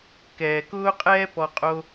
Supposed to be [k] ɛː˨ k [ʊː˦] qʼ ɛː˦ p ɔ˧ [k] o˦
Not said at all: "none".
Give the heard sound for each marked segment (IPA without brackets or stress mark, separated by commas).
k, ʊː˦, qʼ